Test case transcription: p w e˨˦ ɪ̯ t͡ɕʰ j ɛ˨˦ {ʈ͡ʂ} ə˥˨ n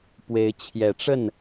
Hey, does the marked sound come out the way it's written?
yes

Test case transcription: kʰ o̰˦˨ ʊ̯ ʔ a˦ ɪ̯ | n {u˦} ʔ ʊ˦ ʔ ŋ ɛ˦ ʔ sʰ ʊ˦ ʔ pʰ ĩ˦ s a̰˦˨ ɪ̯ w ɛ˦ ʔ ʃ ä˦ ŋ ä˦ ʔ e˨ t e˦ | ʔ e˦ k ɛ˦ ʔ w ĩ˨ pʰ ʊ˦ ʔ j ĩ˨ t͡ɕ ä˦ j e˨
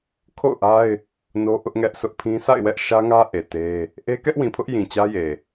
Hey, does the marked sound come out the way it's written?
no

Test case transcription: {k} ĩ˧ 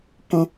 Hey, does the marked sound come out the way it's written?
yes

